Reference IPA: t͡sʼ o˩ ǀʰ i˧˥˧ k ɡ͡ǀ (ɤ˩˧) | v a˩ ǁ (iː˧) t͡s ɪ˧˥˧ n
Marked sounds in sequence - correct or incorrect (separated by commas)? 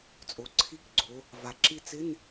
incorrect, incorrect